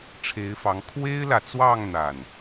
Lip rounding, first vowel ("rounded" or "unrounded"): unrounded